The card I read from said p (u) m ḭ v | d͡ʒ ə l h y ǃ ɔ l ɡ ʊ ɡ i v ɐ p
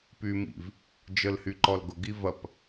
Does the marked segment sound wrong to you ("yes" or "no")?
yes